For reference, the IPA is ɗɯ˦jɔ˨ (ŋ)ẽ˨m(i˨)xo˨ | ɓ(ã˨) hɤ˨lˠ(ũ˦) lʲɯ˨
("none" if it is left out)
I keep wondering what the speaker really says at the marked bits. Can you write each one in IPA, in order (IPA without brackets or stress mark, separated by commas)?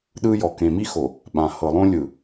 k, i˦, ã˨, õ˦